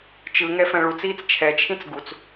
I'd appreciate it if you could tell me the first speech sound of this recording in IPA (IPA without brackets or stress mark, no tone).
t͡ʃ